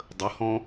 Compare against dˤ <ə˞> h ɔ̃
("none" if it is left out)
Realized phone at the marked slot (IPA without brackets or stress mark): ə